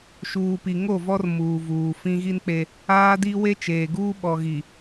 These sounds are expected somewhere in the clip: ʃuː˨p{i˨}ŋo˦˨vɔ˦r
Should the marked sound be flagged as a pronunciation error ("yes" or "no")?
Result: no